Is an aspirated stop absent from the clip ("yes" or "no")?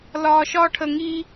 no